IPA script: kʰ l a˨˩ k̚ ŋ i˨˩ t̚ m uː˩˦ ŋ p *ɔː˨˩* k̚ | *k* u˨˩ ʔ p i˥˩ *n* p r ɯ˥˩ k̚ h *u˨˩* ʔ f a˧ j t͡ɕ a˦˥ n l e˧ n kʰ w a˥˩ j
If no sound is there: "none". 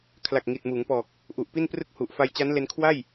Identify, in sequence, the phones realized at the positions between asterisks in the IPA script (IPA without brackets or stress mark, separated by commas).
ɔː˨˩, ʔ, n, u˨˩